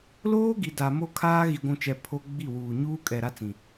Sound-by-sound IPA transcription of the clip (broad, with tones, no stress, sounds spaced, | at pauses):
l oː˦ ɡ i˨ d a˨ m o˦ kʰ aː˦ ɣ i˨ ɡʷ ũ˨ t͡ʃ ɛ˨ pʰ o˦ ɡ͡b i˦˨ w uː˨ ɲ uː˦ kʼ ɛ˨ ɾ a˦ t͡s ĩ˨